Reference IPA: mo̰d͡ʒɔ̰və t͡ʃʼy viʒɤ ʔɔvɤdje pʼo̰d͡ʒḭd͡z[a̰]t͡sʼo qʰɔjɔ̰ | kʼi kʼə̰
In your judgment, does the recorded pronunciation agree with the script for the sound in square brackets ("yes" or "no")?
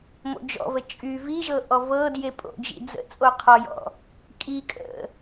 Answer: no